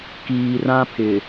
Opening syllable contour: low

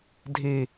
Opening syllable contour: low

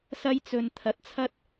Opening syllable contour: high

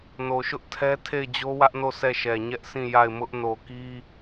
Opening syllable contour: low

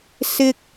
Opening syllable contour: high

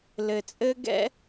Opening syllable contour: low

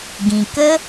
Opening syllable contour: low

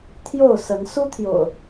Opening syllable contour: falling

